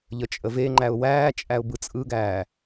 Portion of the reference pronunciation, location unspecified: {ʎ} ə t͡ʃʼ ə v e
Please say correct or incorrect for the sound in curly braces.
correct